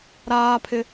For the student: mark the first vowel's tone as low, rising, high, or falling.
high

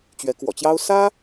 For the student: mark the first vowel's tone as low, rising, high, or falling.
rising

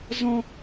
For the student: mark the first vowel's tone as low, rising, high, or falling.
high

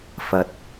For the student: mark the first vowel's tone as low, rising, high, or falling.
low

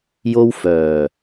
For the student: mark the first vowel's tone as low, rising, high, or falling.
high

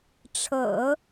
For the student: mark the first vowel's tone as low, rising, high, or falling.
low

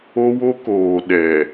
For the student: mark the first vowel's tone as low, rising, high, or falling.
high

